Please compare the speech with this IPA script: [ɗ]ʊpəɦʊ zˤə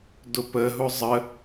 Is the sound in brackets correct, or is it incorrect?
incorrect